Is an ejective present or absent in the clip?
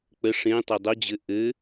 absent